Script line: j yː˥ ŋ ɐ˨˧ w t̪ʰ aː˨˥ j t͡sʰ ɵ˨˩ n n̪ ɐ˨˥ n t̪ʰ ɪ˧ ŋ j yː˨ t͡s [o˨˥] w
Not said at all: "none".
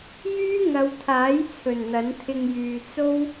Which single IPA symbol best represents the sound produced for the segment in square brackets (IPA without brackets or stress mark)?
o˥